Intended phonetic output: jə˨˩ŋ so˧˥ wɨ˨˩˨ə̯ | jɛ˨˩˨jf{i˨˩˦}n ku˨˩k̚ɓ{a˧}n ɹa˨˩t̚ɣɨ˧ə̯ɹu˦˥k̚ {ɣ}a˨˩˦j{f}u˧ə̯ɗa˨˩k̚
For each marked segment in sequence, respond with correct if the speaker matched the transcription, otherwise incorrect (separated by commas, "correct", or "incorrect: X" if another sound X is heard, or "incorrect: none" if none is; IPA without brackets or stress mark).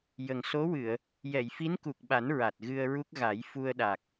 incorrect: i˧˥, incorrect: a˨˩˦, correct, correct